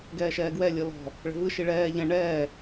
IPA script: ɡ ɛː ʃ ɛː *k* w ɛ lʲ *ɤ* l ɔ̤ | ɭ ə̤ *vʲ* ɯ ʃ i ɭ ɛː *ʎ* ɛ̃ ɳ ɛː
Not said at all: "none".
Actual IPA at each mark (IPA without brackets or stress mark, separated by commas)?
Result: ɡ, ɤ, v, ʎ